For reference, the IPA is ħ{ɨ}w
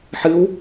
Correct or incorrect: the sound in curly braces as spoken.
correct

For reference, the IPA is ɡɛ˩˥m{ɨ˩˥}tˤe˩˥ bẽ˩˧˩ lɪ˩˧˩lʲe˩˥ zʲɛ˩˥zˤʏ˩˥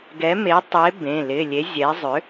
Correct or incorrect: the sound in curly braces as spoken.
incorrect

